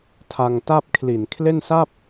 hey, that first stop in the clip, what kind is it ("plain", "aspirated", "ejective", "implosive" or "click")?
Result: aspirated